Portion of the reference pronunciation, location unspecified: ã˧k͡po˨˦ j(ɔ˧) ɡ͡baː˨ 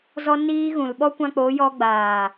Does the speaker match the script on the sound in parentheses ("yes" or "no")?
yes